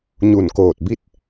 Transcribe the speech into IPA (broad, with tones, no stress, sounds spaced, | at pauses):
ɲ u˧˩ n k oː˧˩ t̚ b i˥˨ t̚